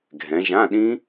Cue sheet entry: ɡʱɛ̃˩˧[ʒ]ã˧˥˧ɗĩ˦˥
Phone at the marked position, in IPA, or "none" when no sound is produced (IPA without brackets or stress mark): ʒ